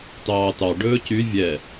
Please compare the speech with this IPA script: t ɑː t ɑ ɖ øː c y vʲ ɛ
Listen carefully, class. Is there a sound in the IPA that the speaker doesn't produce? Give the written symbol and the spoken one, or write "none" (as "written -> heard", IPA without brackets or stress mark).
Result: øː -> ɵː